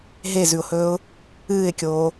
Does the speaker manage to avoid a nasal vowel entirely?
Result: yes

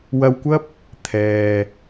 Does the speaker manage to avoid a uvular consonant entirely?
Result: yes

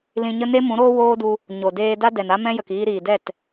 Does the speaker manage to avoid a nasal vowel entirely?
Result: no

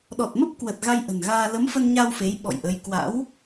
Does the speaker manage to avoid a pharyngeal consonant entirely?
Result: yes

